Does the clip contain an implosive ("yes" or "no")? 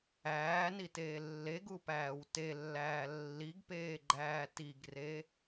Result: no